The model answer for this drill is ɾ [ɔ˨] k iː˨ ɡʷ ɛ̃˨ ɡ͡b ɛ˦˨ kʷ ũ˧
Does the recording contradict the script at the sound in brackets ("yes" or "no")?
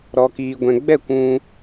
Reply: no